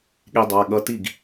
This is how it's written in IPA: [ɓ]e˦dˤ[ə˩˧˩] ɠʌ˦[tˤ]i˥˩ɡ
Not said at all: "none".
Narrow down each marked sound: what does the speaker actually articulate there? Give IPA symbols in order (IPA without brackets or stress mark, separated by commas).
ɠ, a˩˧˩, t